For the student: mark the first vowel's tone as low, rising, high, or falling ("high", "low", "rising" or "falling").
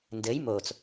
rising